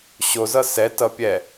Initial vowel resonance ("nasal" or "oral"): oral